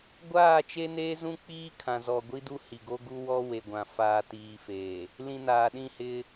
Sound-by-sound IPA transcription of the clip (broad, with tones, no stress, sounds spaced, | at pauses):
ɡʷ aː˦˨ t͡ʃ e˦ n eː˦ z ũ˦ k͡p iː˦ kʰ ã˨ z ɔ˨ ɡʷ i˦ d u˦ h i˨ ɡ o˦ ɡ u˦ w ɔ˦ w e˨ ɡʷ ã˨ f aː˨ t iː˨ f eː˨ | l ĩ˨ n aː˨ ɗ ĩ˦˨ h ɪ˦